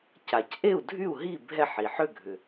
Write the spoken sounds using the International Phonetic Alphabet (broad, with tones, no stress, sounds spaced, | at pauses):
c a˩ c ʔ e˥˩ u̯ dʱ y˥˩ u̯ ɦ i˥˩ bʱ ɛ˥˩ ħ i˩ ħ ʏ˥˩ ɡʱ ʏ˩